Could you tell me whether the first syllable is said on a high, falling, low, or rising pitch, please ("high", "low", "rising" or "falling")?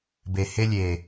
low